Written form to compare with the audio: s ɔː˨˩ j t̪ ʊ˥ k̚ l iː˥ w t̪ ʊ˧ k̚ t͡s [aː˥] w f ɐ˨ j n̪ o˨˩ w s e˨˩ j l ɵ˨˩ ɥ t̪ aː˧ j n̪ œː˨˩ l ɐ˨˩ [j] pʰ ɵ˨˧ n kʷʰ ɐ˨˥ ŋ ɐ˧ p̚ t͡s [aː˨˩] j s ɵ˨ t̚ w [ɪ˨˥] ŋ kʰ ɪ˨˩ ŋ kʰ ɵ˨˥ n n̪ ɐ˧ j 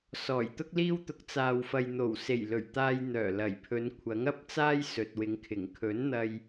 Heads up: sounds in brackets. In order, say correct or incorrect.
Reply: incorrect, correct, incorrect, incorrect

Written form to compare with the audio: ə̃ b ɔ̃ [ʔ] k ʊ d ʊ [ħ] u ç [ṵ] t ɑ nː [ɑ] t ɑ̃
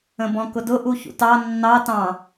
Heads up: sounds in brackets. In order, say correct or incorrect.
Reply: incorrect, incorrect, correct, correct

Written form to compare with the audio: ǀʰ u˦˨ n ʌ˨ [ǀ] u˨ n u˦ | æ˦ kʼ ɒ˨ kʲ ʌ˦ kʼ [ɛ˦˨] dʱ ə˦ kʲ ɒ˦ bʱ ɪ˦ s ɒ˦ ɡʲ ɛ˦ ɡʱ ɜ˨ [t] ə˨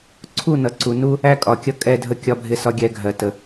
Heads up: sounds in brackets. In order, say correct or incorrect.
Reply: correct, correct, correct

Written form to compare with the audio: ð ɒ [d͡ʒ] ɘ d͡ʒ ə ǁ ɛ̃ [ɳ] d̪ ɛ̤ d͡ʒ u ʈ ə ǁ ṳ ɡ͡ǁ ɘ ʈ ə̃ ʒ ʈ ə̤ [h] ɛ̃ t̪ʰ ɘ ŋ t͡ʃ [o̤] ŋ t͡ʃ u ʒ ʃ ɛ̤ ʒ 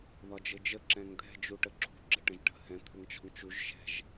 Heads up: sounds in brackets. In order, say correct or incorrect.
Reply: correct, incorrect, correct, incorrect

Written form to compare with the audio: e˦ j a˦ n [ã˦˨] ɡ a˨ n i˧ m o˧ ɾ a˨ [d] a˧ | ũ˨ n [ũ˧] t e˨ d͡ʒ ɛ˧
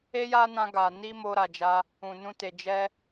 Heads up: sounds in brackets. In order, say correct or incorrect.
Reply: incorrect, incorrect, correct

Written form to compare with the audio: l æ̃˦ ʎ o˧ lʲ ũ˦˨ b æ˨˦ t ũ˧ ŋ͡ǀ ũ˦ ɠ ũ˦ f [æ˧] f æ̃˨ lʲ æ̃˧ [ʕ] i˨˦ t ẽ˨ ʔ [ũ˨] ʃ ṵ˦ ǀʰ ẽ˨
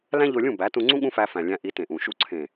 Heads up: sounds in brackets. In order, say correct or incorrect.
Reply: correct, incorrect, correct

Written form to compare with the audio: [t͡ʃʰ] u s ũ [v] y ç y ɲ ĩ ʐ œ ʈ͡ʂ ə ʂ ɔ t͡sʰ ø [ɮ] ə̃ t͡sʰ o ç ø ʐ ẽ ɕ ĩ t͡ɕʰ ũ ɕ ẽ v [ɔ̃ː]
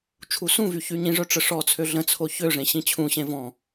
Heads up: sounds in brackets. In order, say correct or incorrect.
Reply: correct, correct, correct, incorrect

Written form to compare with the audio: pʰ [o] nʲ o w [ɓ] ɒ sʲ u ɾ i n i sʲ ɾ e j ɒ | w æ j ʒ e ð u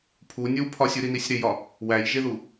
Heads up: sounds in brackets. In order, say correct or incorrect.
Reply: incorrect, incorrect

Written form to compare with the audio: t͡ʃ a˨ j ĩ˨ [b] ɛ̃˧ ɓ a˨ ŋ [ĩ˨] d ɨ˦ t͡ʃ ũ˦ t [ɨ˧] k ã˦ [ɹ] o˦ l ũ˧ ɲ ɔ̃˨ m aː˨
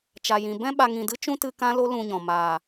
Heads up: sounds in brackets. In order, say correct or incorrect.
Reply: correct, correct, correct, incorrect

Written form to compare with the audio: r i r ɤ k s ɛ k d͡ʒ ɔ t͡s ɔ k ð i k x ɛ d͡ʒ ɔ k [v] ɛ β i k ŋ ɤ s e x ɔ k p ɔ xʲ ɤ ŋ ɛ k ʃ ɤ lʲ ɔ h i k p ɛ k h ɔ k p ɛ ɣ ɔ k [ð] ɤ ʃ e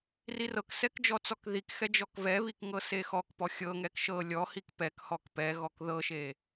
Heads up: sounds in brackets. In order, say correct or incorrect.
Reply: correct, correct

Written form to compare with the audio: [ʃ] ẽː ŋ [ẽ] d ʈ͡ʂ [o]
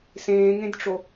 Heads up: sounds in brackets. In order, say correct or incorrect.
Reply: incorrect, correct, correct

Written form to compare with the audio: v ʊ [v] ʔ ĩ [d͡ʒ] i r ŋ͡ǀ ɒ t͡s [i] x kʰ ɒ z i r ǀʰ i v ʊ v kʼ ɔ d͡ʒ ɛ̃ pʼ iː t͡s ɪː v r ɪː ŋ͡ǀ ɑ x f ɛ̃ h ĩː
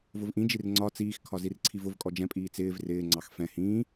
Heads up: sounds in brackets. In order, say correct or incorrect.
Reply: correct, correct, incorrect

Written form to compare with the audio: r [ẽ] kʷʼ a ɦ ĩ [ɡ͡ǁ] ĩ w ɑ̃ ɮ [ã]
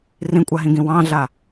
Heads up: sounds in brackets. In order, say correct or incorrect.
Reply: incorrect, incorrect, incorrect

